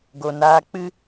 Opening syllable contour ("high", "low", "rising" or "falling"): low